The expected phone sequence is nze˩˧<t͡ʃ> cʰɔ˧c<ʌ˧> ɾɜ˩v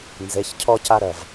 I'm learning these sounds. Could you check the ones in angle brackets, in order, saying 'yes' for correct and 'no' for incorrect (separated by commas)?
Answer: no, no